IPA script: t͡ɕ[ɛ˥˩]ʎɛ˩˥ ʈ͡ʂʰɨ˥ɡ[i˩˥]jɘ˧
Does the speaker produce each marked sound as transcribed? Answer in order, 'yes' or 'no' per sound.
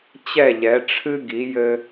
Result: yes, yes

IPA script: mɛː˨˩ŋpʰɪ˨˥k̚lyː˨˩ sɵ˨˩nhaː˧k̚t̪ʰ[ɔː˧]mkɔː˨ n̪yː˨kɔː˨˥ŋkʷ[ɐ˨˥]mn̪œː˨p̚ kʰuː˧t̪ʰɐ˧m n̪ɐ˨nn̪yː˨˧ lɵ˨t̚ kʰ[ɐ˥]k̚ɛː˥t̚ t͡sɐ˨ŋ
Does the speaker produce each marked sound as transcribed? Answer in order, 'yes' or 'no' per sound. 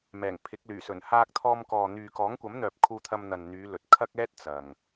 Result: yes, yes, yes

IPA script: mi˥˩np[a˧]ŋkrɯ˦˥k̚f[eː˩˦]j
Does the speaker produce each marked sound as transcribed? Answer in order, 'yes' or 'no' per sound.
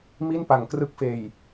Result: no, no

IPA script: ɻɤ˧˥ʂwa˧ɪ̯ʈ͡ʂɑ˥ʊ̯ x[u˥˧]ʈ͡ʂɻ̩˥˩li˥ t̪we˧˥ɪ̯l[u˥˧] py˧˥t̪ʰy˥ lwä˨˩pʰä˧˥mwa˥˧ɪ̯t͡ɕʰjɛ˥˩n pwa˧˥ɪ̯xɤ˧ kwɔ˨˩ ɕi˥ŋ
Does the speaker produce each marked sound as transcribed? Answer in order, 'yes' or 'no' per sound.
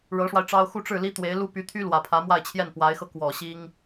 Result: yes, no

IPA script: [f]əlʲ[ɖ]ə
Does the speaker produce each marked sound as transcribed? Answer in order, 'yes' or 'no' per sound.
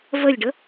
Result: no, yes

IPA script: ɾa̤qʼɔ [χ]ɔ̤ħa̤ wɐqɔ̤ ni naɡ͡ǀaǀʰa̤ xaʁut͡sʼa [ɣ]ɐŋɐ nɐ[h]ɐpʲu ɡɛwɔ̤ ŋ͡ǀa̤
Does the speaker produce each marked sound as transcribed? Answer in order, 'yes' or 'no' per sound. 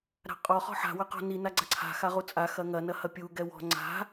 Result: yes, no, yes

